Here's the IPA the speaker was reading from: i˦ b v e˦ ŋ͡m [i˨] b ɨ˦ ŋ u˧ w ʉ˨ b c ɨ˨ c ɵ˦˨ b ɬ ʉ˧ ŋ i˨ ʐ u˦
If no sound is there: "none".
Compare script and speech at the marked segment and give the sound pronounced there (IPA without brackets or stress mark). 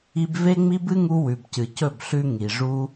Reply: i˦